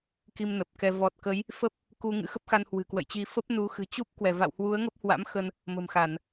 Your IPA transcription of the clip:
k i˧ m n ə˨˩ p̚ k ɛ˧ v ɔ˨˩ t̚ k ə˨˦ j | f ə˦˥ p̚ | k u˧ ŋ ɨ̰˧˥ x ə˦˥ p̚ x a˧ n h w ɨ̤˨˩ k w ə̰˧˨ j t͡ɕ i˧ f ə˦˥ p̚ n u˨˦ x ɨ̤˨˩ t͡ɕ u˦˥ p̚ k w ɛ˧˩ v a̰˧˨ w h w u˨˦ ə̯ ŋ ə˦˥ p̚ h w a̰˧˥ m x ə˧ n | m ə̤˨˩ m x a˧˩˨ n

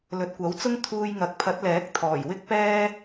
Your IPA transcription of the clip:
l ɵ˨ t̚ kʷ ɐ˨˥ w t͡s ʊ˥ ŋ t̪ʰ uː˧ j ŋ ɐ˨˥ k̚ pʰ ɐ˨˥ t̚ l ɛː˨˥ k̚ t̪ʰ ɔː˨˩ j w ɪ˥ k̚ p ɛː˥

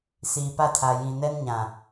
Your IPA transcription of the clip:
s iː˨ p a˦˨ tʰ a˨ j ĩ˨ n ɛ˦ n ɲ ã˨

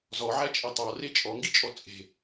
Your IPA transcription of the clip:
z ɔ ʕ æ t͡ʃʼ e tˤ ɑ r e t͡ʃʼ ɔ ŋ ɡ i t͡ʃʼ ɔ t͡sʼ e̤

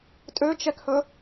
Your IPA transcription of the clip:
tʼ ø t͡ʃ ɛ k h ɵ

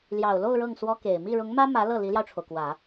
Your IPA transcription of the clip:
l j ɑ˨˩ ʊ̯ l o˥˧ ʊ̯ ɻ ɤ˥˩ ŋ s w ɔ˥ k e˨˩ ɪ̯ m i˥˩ ɻ ʊ˧˥ ŋ m ä˥ m ä˧˥ l ɤ˥˩ l i˧˥ l j ɑ˧ ʊ̯ ʈ͡ʂʰ o˩ ʊ̯ k w ä˨˩˦

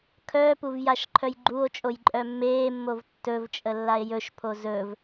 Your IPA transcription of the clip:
kʰ œː p u v j a ʃ ǃʰ œ j ɡ͡ǃ u o̯ t͡ʃʼ o j ǃʼ œ mː eː mː o v tː ɵ v t͡ʃʼ ə lː a e̯ j ɵ ʃ pʰ o z ɵ v

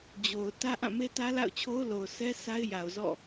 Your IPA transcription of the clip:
d͡ʑ o˨ ʊ̯ t ä˦ ʔ ã˦˨ m e˦ t ä˦ l a̰˦˨ ʊ̯ t͡ɕʰ o˦ ʊ̯ l o˨ ʊ̯ s ɛ˦ s a˦ ɪ̯ j a˨ ʊ̯ z ɔ̰˦˨

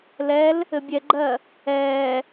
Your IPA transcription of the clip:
l ɛ l | ɘ bʲ ɛ ɡ͡ǃ ɜ | ɛː

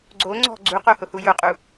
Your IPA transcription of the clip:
ɡ͡ǀ o ŋ͡ǀ ɔ̤ ɡ͡ǀ u q o h ʊ h u j ʊ qʼ u

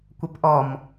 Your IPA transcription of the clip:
kʷ ə p ʔ ɔ m

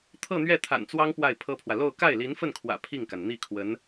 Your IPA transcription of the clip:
t̪ʰ ɤ˥˧ n̪ ɥ ɛ˥˩ t̪ʰ a̰˨˩ n t͡s w ɑ˥ ŋ p w a˥˩ ɪ̯ pʰ ɤ˥ pʰ w ä˨ l o˥˧ ʊ̯ k a˥˩ ɪ̯ l i˧˥ n f ə˥˩ n kʰ w ä̰˨˩ pʰ i˥˩ ŋ k a˩ n n̪ i˥˩ kʰ w ə˧˥ n

